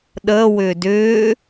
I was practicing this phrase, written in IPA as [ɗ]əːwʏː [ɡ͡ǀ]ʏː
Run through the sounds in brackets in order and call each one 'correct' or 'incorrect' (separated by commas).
correct, incorrect